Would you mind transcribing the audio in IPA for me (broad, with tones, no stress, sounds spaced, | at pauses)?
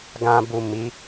ɡ ã˨ b u˨ m i˨˦